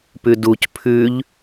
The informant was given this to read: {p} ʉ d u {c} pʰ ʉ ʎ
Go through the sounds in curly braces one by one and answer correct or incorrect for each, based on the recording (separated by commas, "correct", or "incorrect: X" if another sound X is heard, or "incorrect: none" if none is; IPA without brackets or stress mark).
correct, correct